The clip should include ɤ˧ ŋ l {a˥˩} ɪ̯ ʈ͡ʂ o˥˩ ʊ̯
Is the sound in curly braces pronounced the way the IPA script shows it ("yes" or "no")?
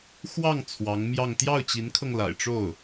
no